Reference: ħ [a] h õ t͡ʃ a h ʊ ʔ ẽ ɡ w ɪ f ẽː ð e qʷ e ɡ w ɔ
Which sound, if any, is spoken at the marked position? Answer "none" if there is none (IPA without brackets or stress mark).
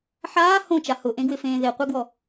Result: aː